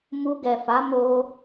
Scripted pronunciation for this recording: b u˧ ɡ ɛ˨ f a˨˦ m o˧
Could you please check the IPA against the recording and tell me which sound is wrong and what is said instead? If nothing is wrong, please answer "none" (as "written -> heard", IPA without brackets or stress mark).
b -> m